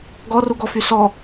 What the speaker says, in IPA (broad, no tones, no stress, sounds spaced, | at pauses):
ɡ ɔ r u ɡ ɔ f y s ɔ